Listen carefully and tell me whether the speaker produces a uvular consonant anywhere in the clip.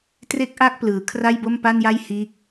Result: no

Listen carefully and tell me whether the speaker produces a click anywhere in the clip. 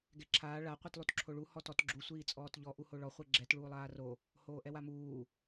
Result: yes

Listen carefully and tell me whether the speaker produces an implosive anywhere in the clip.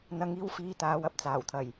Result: no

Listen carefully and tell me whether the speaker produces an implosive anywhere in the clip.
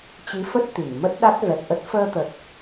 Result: yes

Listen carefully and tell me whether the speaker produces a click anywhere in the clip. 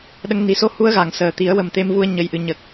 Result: no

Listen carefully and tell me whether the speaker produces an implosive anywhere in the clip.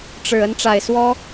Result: no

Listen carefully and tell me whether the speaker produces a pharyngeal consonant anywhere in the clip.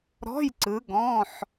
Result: yes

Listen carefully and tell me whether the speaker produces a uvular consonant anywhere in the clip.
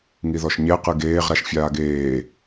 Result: yes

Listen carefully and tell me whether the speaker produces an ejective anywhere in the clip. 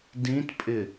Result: yes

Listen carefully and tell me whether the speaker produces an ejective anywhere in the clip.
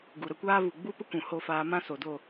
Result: no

